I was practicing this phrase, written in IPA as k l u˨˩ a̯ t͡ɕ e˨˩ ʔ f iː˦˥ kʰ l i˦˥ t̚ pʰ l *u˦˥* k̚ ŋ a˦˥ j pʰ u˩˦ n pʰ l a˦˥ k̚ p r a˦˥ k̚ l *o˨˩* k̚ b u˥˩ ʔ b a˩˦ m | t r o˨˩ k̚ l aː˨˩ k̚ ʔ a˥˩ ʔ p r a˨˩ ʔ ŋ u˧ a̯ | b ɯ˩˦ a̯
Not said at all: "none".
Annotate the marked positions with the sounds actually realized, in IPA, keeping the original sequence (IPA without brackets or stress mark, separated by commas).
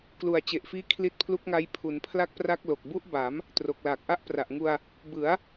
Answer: u˦˥, o˨˩